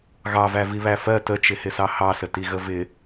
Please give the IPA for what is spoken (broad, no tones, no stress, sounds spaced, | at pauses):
ɣ ɑ v æ v i β æ f ɜ t ə t͡ʃ ɪ h ɪ s ɑ h ɑ s ə t i ɣ ə v ɪ